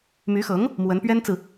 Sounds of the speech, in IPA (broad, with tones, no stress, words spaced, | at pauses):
my˧˥xɤ˧˥ŋ | mwə˧˥npɥɛ˥nt͡sɹ̩˨